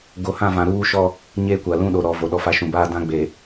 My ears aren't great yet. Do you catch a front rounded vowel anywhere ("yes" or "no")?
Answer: no